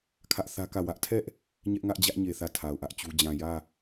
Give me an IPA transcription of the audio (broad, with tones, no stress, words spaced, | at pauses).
kʰä˦ʔθä˦kä˦˨ wä˦ʔtʰɛ˦ʔ | ɲɛ˦ʔŋä˦ʔ d͡ʑä˦ʔɲe˨ θä˦˨tʰa˨ʊ̯ʔä˦ʔt͡ɕu˦ d͡ʑã˨jä˦˨